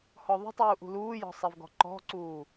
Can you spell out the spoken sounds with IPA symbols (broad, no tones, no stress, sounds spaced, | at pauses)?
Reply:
h ɔ ðˤ ṳ tˤ uː ʔ ṳ l uː j ɔ̤ sˤ ɛ v ɡ ɔ̤ ǃ ɔ̤ ǀ uː